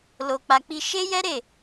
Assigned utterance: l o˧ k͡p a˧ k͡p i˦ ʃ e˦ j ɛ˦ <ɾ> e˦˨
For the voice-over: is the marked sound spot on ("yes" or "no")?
yes